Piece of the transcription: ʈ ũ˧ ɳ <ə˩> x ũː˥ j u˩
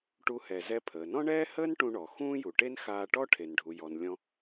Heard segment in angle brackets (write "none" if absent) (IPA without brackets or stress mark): ɔ˩